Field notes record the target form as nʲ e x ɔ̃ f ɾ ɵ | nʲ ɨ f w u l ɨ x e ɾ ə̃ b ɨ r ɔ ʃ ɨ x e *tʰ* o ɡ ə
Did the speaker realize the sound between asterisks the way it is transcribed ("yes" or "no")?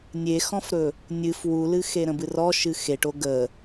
no